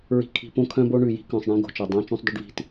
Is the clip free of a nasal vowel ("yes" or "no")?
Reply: no